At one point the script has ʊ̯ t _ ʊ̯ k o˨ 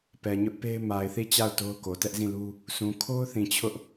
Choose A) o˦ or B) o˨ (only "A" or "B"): A